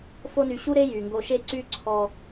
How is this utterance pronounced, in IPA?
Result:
f o˦ n y˨ ɕ u˥ ɾ e˥ j y˩ ŋ ɡ o˨ ʃ e˦ ǀ y˥ ǀʰ ɔ˦

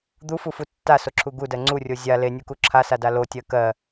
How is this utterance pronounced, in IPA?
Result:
d̪ u f u f u tː a s o ǁʰ u ɡ u d ɜ ŋ͡ǀ u rʲ o zʲ a l e nʲ u k u ǁʰ a s a d a l o tʲ ɜ k ɜ

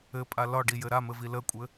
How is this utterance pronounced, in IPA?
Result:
ɘ pʼ a l ɒ ɖ i j ɘ ɾ a m ɘ v i l ə kʷʼ ɘ

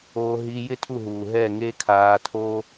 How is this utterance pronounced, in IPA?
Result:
oː˧ ɦ i˧ j ɪ˦ tʰ u˦˨ ɦ uː˨ ɦ ɛ˦˨ ŋ e˦ kʰ aː˧ tʰ o˦

